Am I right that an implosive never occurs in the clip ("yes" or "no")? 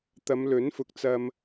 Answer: yes